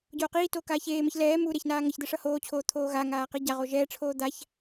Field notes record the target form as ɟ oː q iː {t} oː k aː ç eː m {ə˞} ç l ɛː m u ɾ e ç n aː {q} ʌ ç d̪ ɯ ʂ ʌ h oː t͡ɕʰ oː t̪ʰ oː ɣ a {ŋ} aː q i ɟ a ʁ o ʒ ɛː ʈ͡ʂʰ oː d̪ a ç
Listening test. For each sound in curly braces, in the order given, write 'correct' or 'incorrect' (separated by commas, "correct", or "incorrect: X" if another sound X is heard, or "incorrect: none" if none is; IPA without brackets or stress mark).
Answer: correct, incorrect: ʌ, incorrect: ŋ, correct